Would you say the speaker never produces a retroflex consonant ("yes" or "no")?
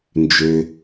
yes